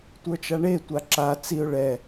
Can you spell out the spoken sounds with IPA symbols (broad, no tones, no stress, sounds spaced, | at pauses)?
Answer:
tʷ ə˞ t͡ʃ a ɳ e tʷ a ǁ a t͡s i ʊ̯ ɭ ɛ